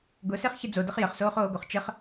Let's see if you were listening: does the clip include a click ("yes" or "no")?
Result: no